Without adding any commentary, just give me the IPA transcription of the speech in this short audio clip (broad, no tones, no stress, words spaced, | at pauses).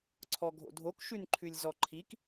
ǀʰɔɡʱo̰dʱok ʃʉnǃʰʉlʲzɔǃʰik